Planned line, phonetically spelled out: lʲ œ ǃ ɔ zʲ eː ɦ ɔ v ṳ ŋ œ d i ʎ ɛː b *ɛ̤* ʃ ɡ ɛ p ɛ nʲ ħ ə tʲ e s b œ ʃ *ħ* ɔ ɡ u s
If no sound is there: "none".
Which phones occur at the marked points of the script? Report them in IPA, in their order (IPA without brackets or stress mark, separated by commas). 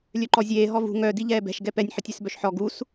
ɛ̤, ħ